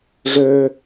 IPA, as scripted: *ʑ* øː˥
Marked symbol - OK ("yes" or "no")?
no